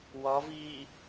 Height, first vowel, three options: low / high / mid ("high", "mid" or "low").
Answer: low